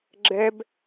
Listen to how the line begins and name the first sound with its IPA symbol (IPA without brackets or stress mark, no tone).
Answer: ɡ͡ǁ